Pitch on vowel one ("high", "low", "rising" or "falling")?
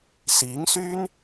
rising